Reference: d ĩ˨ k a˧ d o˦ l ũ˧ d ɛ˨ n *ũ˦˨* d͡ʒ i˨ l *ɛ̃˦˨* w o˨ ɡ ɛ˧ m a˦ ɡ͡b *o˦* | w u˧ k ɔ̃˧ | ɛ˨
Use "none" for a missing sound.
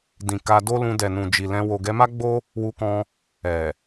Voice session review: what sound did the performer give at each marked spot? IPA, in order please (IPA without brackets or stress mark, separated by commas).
ũ˨, ɛ̃˧, o˦